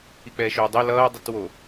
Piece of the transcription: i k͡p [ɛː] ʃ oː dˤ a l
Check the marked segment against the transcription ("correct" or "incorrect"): correct